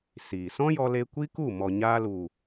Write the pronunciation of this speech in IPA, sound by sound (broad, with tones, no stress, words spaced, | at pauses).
siː˨ sɔ̃˦jɔ˧le˧ kʷi˦ku˦˨ mɔ˨ɲaː˧lu˨